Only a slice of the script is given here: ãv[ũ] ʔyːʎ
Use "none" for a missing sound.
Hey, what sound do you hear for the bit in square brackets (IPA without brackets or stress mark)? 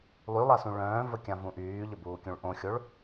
ũ